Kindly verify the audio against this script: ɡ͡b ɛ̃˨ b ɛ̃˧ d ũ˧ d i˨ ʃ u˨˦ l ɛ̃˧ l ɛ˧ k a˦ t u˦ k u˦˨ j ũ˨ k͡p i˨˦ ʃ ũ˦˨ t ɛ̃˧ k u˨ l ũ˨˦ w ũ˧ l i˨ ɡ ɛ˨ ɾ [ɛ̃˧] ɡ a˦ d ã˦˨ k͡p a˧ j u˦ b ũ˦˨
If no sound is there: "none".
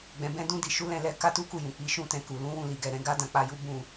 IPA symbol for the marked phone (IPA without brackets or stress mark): ɛ̃˧